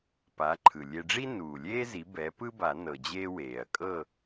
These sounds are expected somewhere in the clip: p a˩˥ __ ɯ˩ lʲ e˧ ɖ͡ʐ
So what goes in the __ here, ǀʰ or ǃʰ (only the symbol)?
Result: ǃʰ